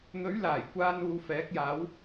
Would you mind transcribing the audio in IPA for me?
n̪ ɵ˨˥ ɥ l aː˨˩ j kʷ aː˧ n uː˧ f ɛː˨˥ k̚ j aː˨˥ w

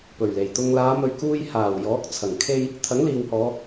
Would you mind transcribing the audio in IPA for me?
p ɵ˨˩ ɥ l e˨˩ j t̪ ʊ˧ ŋ l aː˨˧ m ɵ˨ ɥ k uː˧ j h aː˨˩ w j ɔː˨˥ k̚ t͡sʰ ɐ˨˩ ŋ kʰ e˥ j | t̪ʰ ɐ˨˥ ŋ l iː˨ w h ɔː˨˧

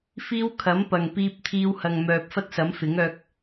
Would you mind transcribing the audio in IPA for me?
f iː˧ w kʰ ɐ˨˥ m p ɐ˨ ŋ p iː˧ p̚ t̪ʰ iː˧ w h ɐ˨ ŋ m œː˨ p̚ f ɐ˥ t̚ s ɐ˨˥ m f ɪ˨˥ ŋ œː˧ k̚

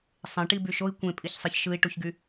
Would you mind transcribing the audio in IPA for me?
sˤ ẽ ʈ i b y ʃ o i̯ kʷ ẽ pʼ i ç sˤ e ç ʃ ɯ i̯ ʈ u ç ɡ y

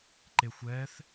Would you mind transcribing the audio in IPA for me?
ǃ e xʷ ɛ θ

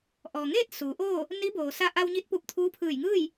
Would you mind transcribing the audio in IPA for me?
ʔ ɔː˩ ŋ eː˥˨ t̚ s uː˩˧ ʔ oː˥˨ | n i˧˥ b oː˩ s a˧ ʔ a˧ w ɲ i˧˥ t̚ p u˧˩ p̚ t̪ʰ uː˧˥ pʰ ɯː˧˩ j ŋ ɯː˥˨ j

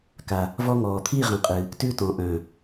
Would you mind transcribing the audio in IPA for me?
k a˨ | v ɔ˦ ŋ ɔː˨ t̪ʰ i˦˨ ʁ ã˨ qʼ ɨ˨ | t ʉ˦ t ɔ̃˨ ʔ œ̃˨

